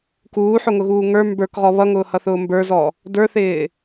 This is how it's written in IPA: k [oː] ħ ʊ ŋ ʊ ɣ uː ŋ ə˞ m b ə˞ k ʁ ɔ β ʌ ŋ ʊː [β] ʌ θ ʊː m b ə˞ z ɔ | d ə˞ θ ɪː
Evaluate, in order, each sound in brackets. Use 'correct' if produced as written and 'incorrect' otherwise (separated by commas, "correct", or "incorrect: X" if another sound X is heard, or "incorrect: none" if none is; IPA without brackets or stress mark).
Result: incorrect: uː, incorrect: h